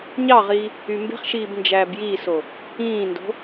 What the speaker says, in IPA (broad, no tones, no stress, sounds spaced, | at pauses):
ɲ ɑ ʁ iː | y m b e̤ χ ʃ iː b n d͡ʒ æː b j iː s o | ĩː n d o̤